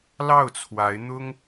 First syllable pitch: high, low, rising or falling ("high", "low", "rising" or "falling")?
falling